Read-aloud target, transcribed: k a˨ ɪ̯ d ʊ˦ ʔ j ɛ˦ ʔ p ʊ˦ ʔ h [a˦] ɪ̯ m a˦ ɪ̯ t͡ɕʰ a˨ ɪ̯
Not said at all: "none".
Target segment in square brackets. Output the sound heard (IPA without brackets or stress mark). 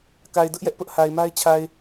a˨